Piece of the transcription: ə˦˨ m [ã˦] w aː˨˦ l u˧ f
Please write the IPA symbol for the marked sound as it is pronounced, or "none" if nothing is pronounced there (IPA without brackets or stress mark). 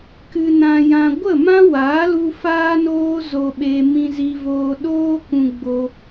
ã˦